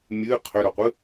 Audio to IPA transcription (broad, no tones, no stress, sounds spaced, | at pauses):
mʲ ɨ qʰ ʏ ɾ o qʷ ɨ